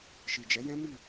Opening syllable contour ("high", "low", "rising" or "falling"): low